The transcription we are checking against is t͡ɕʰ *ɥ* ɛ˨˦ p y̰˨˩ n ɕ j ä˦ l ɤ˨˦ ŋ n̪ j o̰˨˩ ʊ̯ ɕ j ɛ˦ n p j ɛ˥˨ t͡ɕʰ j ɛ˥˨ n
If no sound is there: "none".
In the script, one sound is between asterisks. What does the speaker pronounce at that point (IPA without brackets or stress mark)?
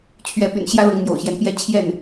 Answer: ɥ